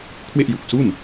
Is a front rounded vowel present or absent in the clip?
absent